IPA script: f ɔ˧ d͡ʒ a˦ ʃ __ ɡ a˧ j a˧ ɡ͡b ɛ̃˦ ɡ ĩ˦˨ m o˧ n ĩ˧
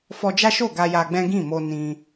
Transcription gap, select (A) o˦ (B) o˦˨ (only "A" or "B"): B